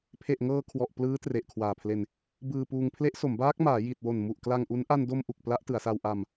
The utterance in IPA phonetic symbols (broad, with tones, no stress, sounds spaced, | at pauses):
pʰ e˨˩ ʔ ŋ ɤː˧ kʰ w ɔ˨˩ ʔ p l ɯː˦˥ t r e˨˩ ʔ kʰ w aː˨˩ pʰ l e˧ n | b ɯː˧ p uː˧ ŋ pʰ l e˦˥ ʔ s o˩˦ m b aː˦˥ k̚ m aː˩˦ j i˨˩ t̚ w o˨˩ n m u˨˩ ʔ k l a˧ ŋ ʔ u˦˥ n ʔ a˧ n d o˧ m ʔ u˨˩ k̚ p l a˦˥ ʔ t ɯ˩˦ a̯ s a˧ w ʔ a˧ m